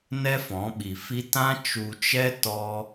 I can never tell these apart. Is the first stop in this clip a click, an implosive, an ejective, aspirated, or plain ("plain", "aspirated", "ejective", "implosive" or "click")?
implosive